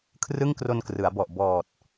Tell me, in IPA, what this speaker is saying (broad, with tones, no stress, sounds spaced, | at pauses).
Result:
kʰ r ɯ˥˩ ŋ k r o˧ n k r ɯ˩˦ a̯ b ɔ˨˩ ʔ b ɔː˨˩ t̚